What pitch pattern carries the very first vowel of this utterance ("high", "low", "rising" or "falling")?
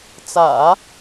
low